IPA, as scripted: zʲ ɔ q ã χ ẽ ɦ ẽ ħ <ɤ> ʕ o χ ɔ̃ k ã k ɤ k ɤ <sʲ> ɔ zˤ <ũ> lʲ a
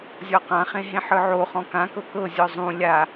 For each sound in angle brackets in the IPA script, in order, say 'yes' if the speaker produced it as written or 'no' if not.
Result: no, no, yes

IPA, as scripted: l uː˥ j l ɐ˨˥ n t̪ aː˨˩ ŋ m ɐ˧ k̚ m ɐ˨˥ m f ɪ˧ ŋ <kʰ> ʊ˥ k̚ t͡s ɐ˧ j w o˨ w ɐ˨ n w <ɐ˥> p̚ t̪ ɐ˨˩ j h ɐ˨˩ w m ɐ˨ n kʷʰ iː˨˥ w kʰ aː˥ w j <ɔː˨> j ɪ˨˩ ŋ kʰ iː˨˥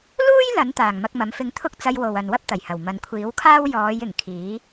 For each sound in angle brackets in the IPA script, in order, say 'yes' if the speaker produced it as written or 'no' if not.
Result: no, yes, no

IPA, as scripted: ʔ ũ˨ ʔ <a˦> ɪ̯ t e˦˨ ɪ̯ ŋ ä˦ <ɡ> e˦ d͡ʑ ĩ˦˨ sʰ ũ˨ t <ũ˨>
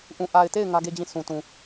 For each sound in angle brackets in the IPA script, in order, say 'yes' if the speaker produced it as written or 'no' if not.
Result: no, yes, yes

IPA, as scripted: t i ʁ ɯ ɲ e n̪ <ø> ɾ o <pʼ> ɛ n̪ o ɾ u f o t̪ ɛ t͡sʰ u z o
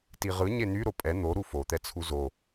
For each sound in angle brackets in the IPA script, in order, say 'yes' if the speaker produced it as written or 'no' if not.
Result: no, yes

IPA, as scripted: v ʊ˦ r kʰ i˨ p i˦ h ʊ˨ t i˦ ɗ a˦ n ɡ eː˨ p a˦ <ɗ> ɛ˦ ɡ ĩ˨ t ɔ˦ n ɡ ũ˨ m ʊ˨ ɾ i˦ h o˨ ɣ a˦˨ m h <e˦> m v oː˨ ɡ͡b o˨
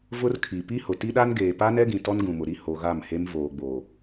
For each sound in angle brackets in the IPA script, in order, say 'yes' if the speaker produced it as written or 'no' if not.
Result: no, yes

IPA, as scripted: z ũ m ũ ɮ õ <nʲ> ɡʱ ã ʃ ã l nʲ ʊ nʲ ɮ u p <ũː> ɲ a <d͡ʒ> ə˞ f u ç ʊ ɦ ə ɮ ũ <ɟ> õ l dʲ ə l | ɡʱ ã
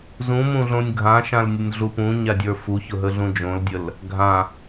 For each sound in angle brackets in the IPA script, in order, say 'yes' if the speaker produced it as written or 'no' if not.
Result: yes, no, no, no

